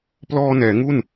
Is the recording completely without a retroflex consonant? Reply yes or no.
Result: yes